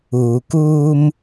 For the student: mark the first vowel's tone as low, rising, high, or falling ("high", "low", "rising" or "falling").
low